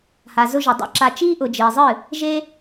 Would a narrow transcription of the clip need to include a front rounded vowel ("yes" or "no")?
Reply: no